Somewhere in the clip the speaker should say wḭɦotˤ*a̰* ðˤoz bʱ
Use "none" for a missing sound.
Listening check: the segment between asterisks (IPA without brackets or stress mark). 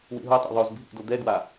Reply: a̰